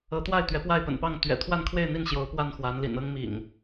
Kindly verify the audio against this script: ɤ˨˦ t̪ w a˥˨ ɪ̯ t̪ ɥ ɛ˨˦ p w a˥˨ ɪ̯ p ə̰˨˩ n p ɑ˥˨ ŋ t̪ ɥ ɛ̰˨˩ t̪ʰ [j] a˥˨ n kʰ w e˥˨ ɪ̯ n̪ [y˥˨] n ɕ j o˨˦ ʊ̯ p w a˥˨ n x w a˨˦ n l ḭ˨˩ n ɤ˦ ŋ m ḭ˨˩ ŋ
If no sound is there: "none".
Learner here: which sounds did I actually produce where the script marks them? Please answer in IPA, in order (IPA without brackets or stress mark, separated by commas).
w, i˥˨